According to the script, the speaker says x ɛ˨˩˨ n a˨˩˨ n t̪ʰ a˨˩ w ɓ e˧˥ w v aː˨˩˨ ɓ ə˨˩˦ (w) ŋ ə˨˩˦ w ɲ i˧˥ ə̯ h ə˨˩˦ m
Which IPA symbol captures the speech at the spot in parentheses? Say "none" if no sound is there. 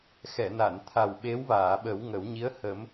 w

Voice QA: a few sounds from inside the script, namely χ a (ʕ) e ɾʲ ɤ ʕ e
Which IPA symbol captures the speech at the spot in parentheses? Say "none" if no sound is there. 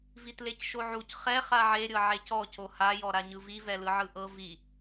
ʕ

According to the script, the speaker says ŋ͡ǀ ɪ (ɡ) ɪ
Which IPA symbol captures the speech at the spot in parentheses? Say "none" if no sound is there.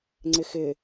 x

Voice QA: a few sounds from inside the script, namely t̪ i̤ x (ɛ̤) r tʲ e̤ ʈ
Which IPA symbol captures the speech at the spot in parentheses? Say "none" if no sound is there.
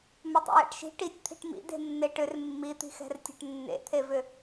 ɛ̤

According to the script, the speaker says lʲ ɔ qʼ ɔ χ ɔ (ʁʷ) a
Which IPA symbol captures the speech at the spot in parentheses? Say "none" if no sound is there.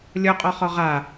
ʁ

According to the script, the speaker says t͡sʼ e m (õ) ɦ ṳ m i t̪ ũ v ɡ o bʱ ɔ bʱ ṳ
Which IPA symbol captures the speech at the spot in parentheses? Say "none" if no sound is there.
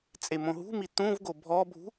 õ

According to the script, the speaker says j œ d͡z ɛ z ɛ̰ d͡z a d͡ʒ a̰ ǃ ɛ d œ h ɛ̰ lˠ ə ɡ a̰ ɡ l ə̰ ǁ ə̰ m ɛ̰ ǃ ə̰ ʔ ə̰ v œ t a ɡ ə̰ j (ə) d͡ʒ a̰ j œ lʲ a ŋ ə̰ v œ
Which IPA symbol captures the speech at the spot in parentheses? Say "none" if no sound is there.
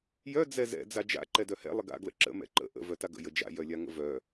ə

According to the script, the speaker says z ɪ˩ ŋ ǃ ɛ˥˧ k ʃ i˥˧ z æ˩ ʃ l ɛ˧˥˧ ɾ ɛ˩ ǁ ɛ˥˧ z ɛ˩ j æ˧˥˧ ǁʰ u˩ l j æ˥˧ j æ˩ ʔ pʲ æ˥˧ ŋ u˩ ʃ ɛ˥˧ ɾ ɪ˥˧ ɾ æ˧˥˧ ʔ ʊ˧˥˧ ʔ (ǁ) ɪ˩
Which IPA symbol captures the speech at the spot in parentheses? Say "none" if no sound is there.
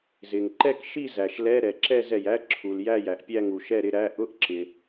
ǁ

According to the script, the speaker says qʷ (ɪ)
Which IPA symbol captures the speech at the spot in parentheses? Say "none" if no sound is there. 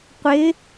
ɪ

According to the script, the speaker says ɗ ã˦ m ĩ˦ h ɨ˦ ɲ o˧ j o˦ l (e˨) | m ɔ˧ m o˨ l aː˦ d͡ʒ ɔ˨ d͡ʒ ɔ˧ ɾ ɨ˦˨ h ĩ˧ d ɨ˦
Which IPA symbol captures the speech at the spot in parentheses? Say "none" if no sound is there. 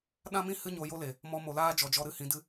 e˨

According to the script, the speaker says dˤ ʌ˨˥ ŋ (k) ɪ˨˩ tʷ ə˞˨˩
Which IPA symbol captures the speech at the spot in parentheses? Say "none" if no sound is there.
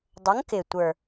k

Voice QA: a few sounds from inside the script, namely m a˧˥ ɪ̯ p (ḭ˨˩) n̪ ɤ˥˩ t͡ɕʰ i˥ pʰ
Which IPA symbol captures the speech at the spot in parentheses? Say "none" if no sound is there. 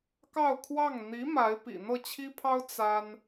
ḭ˨˩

